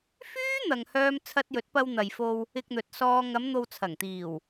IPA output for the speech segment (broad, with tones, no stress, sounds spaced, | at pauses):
f yː˥ n̪ ɐ˨ ŋ h œː˧ m t͡sʰ ɐ˧ t̚ j ɵ˨˥ t̚ p ɐ˧ w n̪ ɐ˨ j f o˧ w | ɪ˧ k̚ n̪ ɵ˨ t̚ s ɔː˧ ŋ ɐ˨˧ m n̪ o˨ w t͡sʰ ɐ˨˩ ŋ t̪ iː˨˩ w